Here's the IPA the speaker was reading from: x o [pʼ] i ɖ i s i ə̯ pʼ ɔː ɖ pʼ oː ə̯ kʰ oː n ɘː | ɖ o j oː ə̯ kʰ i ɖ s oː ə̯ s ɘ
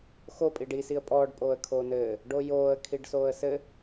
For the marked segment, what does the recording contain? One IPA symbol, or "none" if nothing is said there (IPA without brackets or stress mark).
pʼ